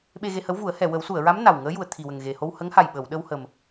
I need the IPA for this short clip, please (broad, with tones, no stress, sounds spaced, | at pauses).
ɓ e˧ ɣ e˧ h ə˧˥ w v u˨˩˦ ə̯ h ɛ˨˩˨ w ə˨˩˦ w s u˨˩˨ ə̯ ɹ a˧˥ m n a˨˩ w ŋ əː˧˥ j u˨˩ ə̯ t̪ʰ i˨˩ w ə˨˩ ŋ ɣ e˨˩ h o˧ w h ə˧˥ ŋ h a˨˩ j ɓ ə˨˩˨ w ɗ ə˧ w h ə˨˩ m